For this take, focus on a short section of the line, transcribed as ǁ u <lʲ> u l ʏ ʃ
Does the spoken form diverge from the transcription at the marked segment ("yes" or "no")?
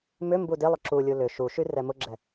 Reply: no